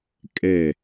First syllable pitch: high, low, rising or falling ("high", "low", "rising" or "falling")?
falling